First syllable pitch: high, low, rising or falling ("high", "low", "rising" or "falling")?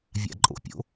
low